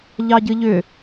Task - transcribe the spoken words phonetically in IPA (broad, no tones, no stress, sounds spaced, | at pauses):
ʎ ɑ ɟ ɨ ʎ ʏ